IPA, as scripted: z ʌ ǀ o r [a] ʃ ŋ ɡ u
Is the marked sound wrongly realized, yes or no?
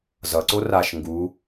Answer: no